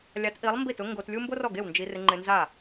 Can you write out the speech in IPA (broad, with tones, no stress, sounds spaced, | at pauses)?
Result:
lʲ a˨˥ t ʔ i˨˥ lˠ m b i˥˩ t ʊ˥ ŋ ɡ o˧ t lʲ u˥ m b o˥ r ɔ˥˩ ɡ e˥˩ w n d͡ʒ i˧ r ɪ˧ ŋ͡ǃ ɪ˧ n z a˥˩